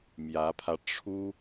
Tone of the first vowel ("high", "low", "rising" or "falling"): rising